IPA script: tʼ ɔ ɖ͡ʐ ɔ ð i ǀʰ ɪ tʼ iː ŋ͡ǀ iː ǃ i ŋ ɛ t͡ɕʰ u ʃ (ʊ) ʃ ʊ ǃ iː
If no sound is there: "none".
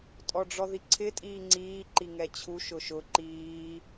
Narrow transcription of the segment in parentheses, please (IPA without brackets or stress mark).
ʊ